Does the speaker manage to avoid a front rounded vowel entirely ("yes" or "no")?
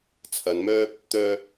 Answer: no